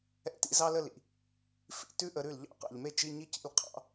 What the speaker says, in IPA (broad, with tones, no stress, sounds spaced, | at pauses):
ɛ̰˥˩ t ḭ˥˧ z ɑ˥ l ə˥˧ l ḭ˨ | f ḭ˥˧ t ʉ˥ ʔ ə˨˦ ɾ ʉ˥˩ l ʎ ɑ̰˥˧ q ɑ̰˨ ʎ m e˥˧ t͡ʃ i˧˥˧ ɲ i˥˧ c ḭ˥˩ l qʰ ɑ̰˨˦